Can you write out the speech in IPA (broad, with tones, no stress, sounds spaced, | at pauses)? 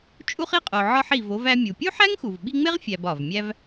t͡ʃʼ u˥ χ i˥ qʼ o˨ ʕ ɒ˦ ħ i˨ v o˦ v æ˦ mʲ u˩ pʲ u˥ ħ æ˥ ŋ x u˩ v ɓ i˦ ŋ͡m e˥ ʁ fʲ æ˨ b ɒ˩ v mʲ æ˦ v